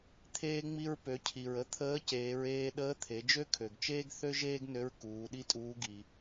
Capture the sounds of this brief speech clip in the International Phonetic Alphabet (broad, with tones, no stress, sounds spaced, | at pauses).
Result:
t̪ʰ eː˧ ŋ͡m i˧ ɹ p ø˩˧ cʰ i˩ ɹ ə˧ t̪ʰ əː˧˥ c eː˩˧ ɹ eː˧ ɗ əː˧˥ t̪ʰ e˩˧ d͡ʒ ø˥ kʰ ø˩ ɡ t͡ʃ eː˥ ɡ θ ø˥ ʒ eː˥ ɡ n ø˧˥ ɹ k uː˩˧ ɗ i˥ tʼ uː˧˥ ɡ i˩